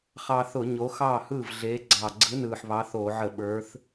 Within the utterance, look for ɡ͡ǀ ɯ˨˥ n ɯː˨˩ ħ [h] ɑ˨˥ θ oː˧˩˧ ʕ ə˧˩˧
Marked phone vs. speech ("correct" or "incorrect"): incorrect